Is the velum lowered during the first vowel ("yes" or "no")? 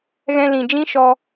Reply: yes